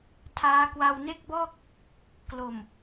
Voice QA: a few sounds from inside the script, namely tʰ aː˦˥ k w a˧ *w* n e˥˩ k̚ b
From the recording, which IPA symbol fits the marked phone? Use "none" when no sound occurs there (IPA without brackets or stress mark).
w